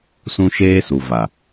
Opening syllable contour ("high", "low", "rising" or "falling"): high